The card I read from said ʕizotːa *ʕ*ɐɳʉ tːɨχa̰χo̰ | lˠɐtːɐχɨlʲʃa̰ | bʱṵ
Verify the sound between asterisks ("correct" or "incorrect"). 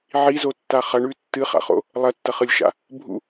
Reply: incorrect